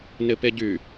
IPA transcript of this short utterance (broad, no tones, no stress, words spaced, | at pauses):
nɪpeɟy